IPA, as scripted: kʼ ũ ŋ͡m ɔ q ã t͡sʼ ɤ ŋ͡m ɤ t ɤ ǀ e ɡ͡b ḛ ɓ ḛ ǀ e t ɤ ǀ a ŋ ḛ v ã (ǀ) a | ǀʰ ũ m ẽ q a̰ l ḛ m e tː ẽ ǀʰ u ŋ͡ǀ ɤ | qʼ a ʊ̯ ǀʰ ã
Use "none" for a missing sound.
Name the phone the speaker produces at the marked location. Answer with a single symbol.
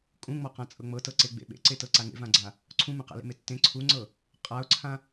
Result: ɡ͡ǀ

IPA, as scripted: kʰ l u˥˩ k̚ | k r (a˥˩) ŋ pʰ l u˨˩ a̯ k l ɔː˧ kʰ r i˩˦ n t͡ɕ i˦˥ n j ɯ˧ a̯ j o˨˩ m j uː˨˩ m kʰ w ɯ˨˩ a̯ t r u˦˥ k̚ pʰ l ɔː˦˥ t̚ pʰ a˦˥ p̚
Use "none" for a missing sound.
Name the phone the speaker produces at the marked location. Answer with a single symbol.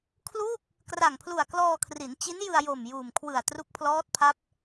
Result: a˨˩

